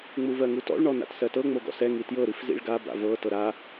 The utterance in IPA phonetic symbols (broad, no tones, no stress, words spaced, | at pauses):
ŋ͡muvɜŋutɔ̰ɭ ɳɔna̰tsɜtɤ ŋ͡moɡɔ̰sɛ ŋitjɤ ɾifzḭɭɡa ba̰vɤ tɤɾa